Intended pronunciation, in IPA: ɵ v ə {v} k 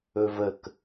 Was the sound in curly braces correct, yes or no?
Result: no